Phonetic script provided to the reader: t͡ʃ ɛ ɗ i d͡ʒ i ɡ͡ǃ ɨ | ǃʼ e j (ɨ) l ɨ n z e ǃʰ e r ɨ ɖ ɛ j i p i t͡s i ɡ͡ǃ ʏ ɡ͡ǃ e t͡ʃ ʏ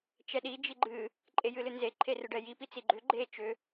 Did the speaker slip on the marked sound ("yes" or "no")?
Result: no